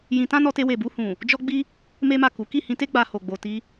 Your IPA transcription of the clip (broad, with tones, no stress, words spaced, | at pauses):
jĩ˧tã˦ nɔ˧te˧we˨bu˧ hũ˨ | d͡ʒɔ˦ɡ͡bi˦ | me˦ma˦˨ku˨˦ ki˦˨hĩ˧te˦ ɡ͡ba˧ho˨ɡ͡bo˨ ti˧